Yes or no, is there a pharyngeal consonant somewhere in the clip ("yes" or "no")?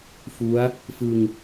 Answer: no